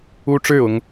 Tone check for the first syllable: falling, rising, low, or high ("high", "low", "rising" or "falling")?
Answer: high